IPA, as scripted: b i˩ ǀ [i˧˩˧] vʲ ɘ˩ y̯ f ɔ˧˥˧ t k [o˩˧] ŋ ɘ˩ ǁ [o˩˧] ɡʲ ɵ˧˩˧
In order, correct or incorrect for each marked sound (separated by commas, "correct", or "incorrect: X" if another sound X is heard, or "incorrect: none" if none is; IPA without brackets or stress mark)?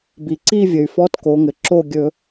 incorrect: i˥˧, correct, incorrect: o˥˩